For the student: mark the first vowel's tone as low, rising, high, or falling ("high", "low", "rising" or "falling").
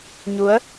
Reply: rising